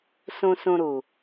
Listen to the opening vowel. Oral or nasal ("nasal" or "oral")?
nasal